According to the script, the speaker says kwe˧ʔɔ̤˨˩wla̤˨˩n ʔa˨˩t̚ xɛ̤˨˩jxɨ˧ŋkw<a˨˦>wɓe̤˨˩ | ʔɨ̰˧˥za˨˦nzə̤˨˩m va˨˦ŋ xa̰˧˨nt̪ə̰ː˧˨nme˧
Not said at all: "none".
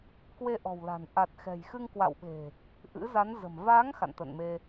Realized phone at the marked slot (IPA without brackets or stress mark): a̰˧˨